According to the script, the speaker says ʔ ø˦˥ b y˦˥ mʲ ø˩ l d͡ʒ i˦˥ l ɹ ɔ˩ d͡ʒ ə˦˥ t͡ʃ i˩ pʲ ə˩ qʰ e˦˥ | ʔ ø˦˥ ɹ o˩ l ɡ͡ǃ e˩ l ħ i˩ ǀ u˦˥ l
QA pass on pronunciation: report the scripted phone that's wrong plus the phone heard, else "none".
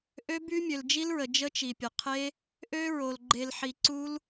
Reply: ɔ˩ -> ə˩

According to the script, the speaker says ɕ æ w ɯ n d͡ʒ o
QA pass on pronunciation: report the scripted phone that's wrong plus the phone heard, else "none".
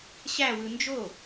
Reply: none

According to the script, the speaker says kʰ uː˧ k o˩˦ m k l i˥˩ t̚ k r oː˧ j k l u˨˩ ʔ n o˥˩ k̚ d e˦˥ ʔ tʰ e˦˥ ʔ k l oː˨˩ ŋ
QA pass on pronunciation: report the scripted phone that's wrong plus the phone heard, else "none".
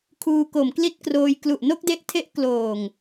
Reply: none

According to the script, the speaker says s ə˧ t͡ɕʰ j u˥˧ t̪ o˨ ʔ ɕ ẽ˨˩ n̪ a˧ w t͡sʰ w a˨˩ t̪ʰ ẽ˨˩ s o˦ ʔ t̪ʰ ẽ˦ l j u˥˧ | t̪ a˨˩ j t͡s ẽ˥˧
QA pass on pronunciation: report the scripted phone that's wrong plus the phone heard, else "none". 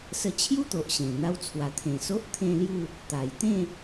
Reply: t͡s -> t̪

